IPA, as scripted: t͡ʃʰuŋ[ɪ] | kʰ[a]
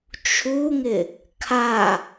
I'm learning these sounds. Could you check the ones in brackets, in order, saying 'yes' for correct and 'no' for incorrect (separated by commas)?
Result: yes, yes